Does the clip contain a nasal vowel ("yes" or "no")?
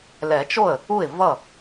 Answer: no